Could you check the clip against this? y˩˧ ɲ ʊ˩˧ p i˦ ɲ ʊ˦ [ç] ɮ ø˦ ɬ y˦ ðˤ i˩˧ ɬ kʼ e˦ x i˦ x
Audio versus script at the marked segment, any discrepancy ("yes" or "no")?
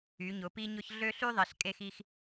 no